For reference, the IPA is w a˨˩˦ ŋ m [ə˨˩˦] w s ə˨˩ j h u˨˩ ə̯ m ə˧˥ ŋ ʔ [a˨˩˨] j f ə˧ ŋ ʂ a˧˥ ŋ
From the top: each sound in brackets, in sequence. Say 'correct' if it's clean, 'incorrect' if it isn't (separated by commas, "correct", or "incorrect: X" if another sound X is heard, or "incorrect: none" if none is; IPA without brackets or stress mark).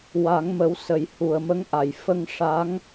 correct, correct